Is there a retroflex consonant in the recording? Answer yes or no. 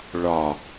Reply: yes